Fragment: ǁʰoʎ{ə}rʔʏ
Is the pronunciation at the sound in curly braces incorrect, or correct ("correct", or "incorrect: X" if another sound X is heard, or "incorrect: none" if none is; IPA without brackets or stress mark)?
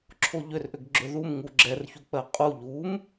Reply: incorrect: ʏ